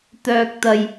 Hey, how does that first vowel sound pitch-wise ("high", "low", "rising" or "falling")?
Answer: low